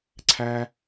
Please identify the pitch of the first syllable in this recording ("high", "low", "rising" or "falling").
high